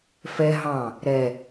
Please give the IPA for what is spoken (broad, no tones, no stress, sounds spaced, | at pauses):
f ɛ ɦ ɑ̃ | ɾ ɛ